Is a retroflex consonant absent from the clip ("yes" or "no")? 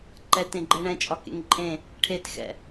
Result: no